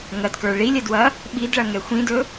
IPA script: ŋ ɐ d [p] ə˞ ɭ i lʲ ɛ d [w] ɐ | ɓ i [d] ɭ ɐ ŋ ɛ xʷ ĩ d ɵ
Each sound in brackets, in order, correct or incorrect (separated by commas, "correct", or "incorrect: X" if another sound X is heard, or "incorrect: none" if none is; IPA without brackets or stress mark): incorrect: k, correct, correct